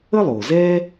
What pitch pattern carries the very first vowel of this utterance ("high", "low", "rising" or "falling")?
high